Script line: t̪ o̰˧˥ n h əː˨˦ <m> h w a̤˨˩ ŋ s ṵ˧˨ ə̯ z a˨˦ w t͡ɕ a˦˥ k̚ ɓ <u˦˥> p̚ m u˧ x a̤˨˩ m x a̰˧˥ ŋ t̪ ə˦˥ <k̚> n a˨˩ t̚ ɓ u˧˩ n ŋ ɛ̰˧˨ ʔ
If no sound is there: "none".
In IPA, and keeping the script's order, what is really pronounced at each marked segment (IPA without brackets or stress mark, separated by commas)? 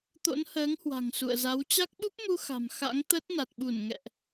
ŋ, u˦˥, t̚